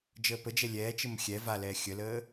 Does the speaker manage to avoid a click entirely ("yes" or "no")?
yes